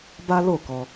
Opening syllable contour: high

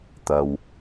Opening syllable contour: low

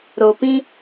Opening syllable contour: low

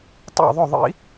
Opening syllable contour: falling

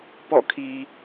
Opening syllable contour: falling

